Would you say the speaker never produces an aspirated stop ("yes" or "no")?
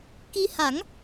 yes